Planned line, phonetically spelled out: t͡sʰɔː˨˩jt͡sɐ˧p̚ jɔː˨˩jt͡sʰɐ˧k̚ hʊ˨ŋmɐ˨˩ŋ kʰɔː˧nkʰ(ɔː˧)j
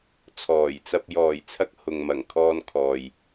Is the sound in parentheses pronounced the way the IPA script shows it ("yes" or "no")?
no